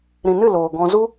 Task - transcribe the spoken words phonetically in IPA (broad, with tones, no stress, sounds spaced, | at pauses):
ɾ ĩ˨ n ɨ˦˨ l oː˨ ɡ ɔ̃˧ z u˦